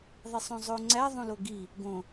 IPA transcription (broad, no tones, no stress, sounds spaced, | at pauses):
ðˤ i sˤ õ zˤ o ŋ͡ǀ æ ðˤ ũ l o ɡ i | ɡ õ